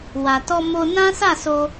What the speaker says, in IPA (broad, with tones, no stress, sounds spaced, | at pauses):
w a˨ t ɔ˧ m o˧ n ã˦ s a˦˨ s o˧